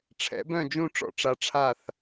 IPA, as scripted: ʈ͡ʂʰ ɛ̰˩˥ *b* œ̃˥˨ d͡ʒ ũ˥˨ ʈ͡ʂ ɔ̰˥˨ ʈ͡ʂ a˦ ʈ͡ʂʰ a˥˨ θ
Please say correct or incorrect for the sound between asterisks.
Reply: correct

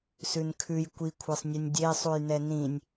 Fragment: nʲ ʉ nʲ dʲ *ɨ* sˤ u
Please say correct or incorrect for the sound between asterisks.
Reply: incorrect: e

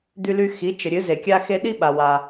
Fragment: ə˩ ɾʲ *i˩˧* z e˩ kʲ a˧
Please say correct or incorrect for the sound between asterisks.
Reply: incorrect: ɨ˩˧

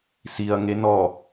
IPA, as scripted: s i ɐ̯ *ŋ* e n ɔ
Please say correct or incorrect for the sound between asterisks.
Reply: correct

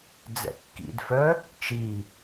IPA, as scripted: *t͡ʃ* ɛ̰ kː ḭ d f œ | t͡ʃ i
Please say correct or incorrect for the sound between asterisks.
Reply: incorrect: d͡z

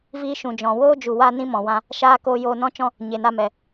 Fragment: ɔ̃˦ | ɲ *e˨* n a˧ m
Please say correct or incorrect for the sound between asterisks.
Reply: correct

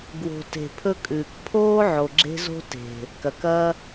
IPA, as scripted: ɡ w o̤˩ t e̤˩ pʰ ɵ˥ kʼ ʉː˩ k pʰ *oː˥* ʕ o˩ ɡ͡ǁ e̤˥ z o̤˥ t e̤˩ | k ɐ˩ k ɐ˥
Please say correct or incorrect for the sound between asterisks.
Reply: correct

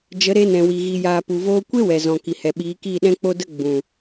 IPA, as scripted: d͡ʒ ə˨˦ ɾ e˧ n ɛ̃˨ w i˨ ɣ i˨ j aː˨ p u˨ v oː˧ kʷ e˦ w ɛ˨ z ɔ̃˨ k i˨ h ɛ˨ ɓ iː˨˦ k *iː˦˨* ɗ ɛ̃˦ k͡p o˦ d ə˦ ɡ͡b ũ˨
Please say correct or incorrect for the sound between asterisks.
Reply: correct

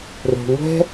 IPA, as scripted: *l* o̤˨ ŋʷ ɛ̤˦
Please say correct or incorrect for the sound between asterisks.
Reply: incorrect: r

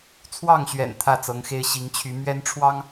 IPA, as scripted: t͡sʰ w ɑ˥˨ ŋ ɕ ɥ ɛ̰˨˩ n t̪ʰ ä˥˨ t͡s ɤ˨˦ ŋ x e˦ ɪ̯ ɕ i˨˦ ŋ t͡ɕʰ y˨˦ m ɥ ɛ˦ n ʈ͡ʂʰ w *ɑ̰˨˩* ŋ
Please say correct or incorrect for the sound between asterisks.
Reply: incorrect: ɑ˦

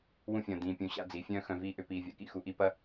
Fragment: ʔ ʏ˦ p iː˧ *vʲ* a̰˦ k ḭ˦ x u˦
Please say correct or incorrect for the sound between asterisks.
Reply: correct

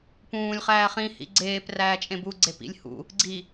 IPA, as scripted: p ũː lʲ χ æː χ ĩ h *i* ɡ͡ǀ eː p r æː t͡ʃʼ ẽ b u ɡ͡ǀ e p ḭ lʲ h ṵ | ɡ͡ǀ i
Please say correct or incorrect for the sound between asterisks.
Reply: incorrect: ḭ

